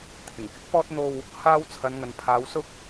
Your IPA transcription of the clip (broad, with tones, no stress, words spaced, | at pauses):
t̪ʰɪ˨˩ŋkɪ˥k̚pɔː˥t̚ n̪o˧w | haː˥w t͡sʰɐ˨˧nŋɐ˨npʰaː˨˧wsʊ˥k̚